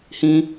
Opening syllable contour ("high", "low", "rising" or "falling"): high